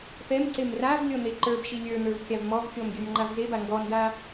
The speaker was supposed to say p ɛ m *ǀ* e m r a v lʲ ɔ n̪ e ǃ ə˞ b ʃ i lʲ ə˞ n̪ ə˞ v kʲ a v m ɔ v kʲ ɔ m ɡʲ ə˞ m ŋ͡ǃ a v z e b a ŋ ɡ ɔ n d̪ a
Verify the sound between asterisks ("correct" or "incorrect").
correct